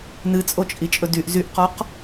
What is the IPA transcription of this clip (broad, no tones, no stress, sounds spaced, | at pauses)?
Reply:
n ɨ t͡sʼ o t͡ʃʼ i t͡ʃʼ ɵ d y ʔ z y ʔ q ɔ q